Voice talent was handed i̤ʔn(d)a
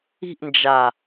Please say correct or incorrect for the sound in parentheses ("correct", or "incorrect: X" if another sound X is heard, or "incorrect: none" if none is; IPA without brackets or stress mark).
incorrect: d͡ʒ